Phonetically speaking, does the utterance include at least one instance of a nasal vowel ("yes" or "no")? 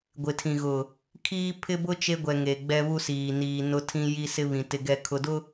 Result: yes